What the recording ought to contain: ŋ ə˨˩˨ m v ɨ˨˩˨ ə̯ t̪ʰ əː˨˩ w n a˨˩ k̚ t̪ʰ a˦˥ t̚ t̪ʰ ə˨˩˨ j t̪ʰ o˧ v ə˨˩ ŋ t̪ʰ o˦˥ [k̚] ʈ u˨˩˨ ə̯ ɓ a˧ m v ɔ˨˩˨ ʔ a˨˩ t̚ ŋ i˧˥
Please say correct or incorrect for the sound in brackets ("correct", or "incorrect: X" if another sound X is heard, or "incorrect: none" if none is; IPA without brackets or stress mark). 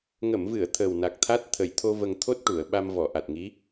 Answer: incorrect: t̚